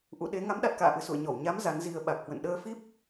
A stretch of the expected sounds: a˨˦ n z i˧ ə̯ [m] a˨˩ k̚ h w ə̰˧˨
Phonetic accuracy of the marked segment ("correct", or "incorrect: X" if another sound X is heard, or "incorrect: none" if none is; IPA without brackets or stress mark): incorrect: ɓ